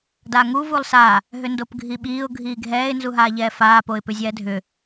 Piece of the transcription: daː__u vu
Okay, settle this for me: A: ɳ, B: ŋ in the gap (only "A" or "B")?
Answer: B